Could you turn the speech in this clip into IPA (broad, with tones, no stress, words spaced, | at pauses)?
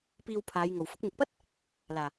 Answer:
piː˨w pʰaː˨˧j ŋo˨˩w fʊ˧k̚mɪ˨k̚pɐ˥t̚ | laː˨˩